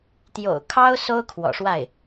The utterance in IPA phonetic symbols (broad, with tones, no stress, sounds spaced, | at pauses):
t̪ j o̰˨˩ ʊ̯ kʰ ɑ˥ ʊ̯ s o˥ ʊ̯ kʰ w ɔ̰˨˩ ʂ w a˥˩ ɪ̯